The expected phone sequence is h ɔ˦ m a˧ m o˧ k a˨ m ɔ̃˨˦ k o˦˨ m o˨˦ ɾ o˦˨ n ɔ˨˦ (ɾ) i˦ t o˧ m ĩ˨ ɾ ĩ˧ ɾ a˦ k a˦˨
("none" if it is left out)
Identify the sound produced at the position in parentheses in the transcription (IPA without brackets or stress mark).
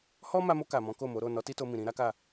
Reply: t